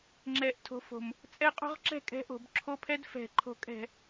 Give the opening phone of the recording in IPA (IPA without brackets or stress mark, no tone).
ŋ͡ǁ